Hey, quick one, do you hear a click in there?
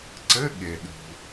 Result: yes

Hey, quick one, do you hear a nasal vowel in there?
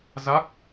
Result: no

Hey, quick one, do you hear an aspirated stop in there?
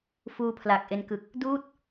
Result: yes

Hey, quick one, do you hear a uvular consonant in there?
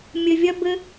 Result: no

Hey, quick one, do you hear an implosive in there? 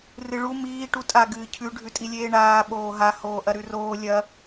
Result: yes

